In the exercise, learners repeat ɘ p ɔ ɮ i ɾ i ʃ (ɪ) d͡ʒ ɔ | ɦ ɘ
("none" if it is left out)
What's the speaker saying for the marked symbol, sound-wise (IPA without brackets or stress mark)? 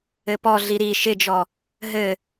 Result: ɪ